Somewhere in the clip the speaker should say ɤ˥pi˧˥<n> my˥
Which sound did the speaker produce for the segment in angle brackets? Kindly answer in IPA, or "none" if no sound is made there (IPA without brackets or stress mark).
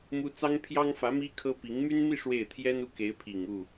ŋ